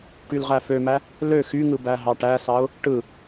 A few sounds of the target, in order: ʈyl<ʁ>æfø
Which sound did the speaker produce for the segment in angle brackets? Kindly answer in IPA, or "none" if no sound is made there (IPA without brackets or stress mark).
ʁ